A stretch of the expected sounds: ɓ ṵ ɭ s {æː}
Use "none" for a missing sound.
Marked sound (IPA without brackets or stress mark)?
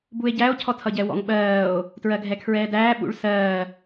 ɜː